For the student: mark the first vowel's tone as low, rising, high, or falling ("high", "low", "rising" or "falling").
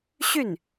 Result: falling